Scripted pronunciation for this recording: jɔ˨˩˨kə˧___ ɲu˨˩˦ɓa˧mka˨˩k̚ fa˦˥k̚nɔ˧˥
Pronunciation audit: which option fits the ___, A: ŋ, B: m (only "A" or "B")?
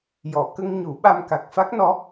A